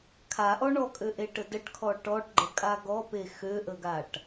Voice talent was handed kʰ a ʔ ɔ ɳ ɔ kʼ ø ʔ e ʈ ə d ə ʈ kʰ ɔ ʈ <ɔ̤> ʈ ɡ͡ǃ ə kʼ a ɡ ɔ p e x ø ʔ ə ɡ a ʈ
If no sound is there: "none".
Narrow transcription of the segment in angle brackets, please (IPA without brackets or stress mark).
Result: ɔ